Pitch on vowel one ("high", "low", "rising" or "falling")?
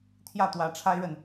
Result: falling